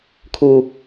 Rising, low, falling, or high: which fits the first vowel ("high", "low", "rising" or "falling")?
low